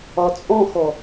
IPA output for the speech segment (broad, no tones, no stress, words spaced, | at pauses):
ɒt͡sʼɔ̃xɔ